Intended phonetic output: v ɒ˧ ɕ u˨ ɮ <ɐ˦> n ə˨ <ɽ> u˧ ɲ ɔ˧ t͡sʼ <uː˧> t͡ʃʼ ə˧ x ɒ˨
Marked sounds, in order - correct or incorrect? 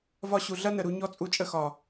correct, incorrect, incorrect

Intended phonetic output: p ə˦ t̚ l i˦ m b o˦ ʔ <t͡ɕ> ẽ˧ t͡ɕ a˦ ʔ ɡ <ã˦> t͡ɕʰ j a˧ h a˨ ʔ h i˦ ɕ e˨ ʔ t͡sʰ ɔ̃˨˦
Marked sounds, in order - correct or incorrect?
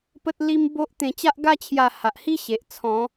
incorrect, incorrect

